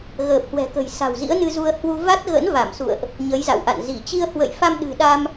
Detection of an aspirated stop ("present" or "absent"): absent